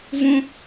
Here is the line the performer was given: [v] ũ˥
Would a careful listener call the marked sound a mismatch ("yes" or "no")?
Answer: no